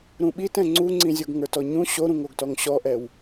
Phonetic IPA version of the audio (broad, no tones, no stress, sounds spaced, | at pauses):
ɾ ũ ɓ i t ɛ̃ ŋ͡ǀ u ŋ͡ǀ ĩ zʲ o ɡ ŋ ə˞ t ɔ ɲ ũ ɕ o ɾ ũ ŋ o ɡ t ɔ ŋ ɕ ɔ ʔ ɛ w